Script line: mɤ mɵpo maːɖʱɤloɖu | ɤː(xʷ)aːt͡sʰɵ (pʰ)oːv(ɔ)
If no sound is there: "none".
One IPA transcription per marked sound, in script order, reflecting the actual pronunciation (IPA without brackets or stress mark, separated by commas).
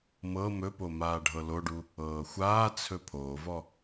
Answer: xʷ, pʰ, ɔ